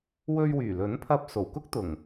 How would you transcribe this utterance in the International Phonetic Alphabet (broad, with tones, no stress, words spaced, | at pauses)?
wɵ˧ɥwyː˨˩lɵ˨˥n pʰɐ˧p̚ so˨˩wkʊ˥k̚t̪ʊ˨˩ŋ